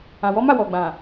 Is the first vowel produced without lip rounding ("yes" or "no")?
yes